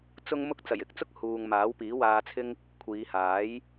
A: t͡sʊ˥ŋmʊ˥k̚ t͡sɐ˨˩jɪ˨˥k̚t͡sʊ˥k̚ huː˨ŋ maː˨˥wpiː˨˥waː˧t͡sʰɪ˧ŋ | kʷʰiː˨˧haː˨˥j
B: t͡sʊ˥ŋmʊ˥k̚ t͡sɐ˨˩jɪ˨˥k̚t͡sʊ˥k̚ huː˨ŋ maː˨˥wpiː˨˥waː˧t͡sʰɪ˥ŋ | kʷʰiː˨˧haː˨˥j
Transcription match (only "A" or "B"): B